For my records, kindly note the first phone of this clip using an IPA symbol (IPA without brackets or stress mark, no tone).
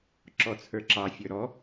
ǁ